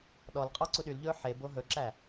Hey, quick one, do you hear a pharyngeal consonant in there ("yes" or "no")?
yes